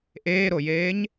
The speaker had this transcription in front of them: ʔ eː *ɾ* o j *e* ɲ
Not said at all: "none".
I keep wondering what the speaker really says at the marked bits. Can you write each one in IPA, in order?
ɾ, eː

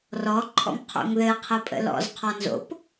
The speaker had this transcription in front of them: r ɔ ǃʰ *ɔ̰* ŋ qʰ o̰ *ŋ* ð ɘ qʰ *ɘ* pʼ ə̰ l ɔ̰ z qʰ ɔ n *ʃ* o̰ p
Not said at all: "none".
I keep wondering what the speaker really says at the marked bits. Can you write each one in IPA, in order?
ɔ̰, ŋ, ɘ, z

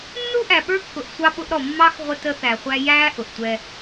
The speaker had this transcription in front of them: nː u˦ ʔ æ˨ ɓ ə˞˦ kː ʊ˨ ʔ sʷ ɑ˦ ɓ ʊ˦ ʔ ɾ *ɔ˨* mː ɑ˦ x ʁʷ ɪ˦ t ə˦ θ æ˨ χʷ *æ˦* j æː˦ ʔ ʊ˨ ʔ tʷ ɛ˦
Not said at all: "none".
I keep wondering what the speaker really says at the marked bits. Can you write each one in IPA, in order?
ɔ˨, æ˦

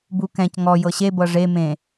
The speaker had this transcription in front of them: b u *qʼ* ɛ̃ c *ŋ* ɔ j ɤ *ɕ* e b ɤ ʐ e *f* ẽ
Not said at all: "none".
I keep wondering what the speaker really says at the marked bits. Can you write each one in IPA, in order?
k, ŋ, ɕ, m

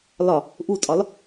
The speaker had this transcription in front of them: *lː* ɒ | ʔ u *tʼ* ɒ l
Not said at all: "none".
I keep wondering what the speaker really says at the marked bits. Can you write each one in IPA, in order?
l, tʼ

